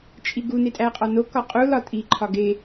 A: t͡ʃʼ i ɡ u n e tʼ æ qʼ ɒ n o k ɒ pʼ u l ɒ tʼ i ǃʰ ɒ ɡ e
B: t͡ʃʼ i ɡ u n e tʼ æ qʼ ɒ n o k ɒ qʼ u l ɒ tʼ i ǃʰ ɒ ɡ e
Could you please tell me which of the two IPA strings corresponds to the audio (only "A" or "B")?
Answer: B